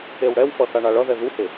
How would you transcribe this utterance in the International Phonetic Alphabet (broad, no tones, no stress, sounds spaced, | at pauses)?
e w ɽ ɛ w f ʌ θ a ɳ a ɭ ʌ ð ɛ ð u h e